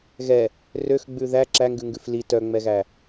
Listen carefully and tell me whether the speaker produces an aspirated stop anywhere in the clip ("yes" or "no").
no